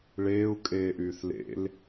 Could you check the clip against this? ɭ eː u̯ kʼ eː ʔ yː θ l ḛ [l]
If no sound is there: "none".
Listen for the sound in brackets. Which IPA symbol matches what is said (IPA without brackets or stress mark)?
l